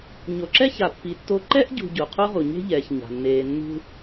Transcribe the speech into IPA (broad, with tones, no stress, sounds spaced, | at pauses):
ɲ o˨ ǁ ɛ˥ ç a˨ pː i˨ tː o˦ ǃ ɛ˥ ʔ ɟ ṳ˨ ɟ u˩ qʰ u˥ ʁ u˩ ɲ e̤˥ ʎ ɛː˩ ç ɲ a̤˩ nː eː˨ nː ṳ˦